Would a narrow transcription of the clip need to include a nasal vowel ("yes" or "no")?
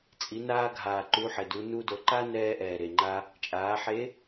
no